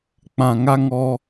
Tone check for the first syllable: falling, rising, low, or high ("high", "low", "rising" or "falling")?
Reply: low